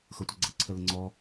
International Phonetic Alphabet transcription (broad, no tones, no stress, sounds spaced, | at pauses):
x ɤ tʷ ɛ ɡ͡ǀ ɤ ǀʰ ə l ə ŋ͡ǀ ɔ